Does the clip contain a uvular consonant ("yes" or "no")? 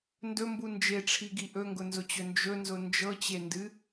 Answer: no